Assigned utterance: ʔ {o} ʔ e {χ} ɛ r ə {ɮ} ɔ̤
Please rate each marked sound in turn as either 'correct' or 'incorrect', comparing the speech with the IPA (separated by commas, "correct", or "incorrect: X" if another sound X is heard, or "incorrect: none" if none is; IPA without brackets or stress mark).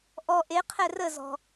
incorrect: ɔ, incorrect: qʰ, incorrect: z